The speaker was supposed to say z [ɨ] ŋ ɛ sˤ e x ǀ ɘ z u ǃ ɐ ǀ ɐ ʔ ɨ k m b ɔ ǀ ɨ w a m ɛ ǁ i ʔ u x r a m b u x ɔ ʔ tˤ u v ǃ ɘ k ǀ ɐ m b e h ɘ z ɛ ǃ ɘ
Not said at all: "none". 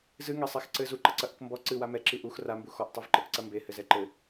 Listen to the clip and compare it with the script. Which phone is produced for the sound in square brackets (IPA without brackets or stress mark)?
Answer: ɨ